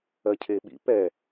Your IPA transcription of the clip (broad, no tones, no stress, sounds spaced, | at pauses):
ɜ cʰ e ɓ ḭ p ɛ